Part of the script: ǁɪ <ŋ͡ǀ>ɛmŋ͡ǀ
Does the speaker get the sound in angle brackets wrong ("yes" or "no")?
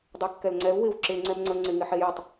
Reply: no